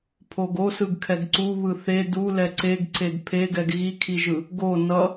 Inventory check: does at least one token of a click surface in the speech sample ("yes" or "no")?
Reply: yes